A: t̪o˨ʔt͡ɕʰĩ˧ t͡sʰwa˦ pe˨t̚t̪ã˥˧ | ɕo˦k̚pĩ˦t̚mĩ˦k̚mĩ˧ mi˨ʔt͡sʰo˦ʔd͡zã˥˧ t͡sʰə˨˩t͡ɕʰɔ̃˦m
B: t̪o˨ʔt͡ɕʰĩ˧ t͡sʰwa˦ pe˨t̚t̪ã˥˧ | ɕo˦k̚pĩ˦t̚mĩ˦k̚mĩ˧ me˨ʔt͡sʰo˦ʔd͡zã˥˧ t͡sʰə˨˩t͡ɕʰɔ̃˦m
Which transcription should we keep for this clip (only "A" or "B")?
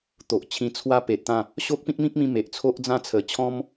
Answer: B